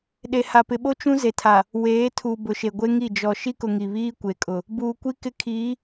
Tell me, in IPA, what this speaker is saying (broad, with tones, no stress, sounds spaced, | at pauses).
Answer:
ɗ e˨ h a˨ p ɪ˨ ɓ o˦ t͡ʃ ũ˦ z e˨ tʰ a˨ | w eː˨˦ tʰ u˨ b ʊ˨ ʃ e˨ ɡʷ e˦ ŋ i˦˨ d͡ʒ ɔ˨ ʃ i˦ k ʊ˨ ŋ i˨ β iː˦ kʷ e˨ kʼ ʊ˨ | b uː˨ kʷ i˦ k ɪ˦ kʰ iː˨˦